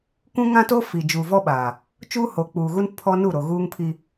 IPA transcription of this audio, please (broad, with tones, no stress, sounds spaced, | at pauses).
kʷ ũ˦ ŋ ã˦ t o˦ f i˨ d͡ʒ uː˨ v ɔ˦ ɓ aː˨ | t͡ʃ uː˦ h o˨ k͡p uː˨ ɣ u˦ n pʰ ɔ˦ n u˦˨ ɾ o˨ ɣ uː˦ ŋ pʰ i˦